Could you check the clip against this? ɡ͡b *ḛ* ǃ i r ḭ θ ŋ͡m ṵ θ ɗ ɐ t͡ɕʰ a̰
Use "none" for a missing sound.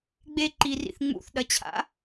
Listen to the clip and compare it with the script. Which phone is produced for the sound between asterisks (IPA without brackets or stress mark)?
e